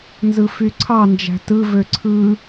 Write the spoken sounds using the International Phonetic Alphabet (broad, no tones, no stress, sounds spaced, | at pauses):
n z ɯ f y ǀʰ ɑ n d͡ʒ æ̤ t ɯ v ø ǀʰ ɯ